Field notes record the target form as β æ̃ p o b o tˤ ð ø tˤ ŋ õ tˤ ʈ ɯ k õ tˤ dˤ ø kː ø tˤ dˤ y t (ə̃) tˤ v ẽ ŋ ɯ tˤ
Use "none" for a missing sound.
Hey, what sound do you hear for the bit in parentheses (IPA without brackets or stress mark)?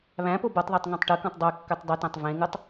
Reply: æ̃